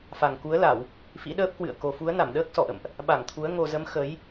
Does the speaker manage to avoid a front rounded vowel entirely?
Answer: yes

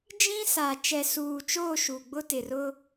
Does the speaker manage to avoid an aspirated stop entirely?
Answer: yes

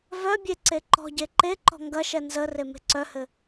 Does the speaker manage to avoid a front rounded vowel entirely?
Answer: no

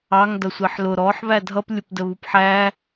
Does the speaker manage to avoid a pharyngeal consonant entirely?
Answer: no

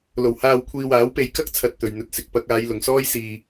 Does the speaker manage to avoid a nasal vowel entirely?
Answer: yes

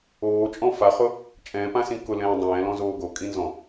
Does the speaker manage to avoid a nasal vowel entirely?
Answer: no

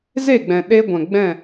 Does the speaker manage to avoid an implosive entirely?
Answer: no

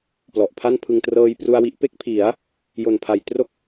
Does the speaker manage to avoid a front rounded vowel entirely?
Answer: yes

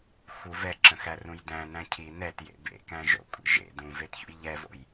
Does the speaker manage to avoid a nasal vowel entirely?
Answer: no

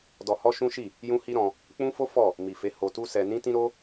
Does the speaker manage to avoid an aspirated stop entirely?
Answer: yes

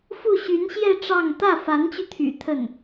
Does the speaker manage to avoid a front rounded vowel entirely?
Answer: no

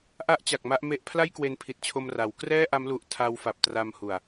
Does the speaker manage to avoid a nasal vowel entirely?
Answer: yes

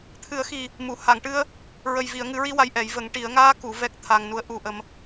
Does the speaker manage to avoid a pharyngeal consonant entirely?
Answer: yes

